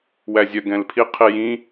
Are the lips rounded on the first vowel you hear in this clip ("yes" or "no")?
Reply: no